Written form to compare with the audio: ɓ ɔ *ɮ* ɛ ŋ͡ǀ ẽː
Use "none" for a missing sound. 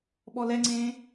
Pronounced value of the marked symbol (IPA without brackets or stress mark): l